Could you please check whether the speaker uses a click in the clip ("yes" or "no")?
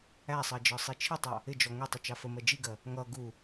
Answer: no